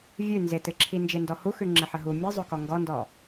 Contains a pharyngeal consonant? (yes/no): yes